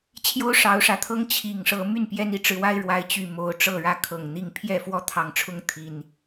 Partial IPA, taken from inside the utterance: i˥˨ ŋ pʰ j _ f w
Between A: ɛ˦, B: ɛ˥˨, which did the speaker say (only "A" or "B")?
B